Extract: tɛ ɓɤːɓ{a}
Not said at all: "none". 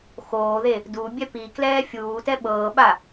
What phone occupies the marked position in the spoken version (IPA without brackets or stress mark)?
a